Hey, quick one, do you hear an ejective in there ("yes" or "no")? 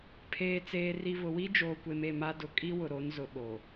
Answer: yes